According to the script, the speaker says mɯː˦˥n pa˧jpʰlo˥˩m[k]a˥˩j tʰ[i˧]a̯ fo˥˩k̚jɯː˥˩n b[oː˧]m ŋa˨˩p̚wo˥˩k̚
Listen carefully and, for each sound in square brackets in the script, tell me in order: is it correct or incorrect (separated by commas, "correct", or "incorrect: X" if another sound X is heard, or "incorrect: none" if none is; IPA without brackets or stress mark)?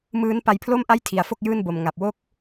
incorrect: ʔ, correct, incorrect: o˧